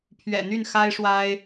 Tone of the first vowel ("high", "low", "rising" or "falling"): low